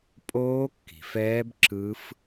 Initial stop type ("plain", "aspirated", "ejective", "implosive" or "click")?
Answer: ejective